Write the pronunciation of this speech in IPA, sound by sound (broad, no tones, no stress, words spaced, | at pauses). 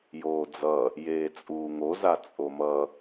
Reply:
joːd͡zʌ | jeːt͡sʼuːŋoza t͡sʼomʌ